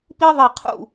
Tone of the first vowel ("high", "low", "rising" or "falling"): high